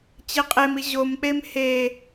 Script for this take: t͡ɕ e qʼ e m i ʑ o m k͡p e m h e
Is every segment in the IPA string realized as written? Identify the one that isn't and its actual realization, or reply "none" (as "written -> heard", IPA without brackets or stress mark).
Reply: none